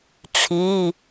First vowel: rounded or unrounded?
unrounded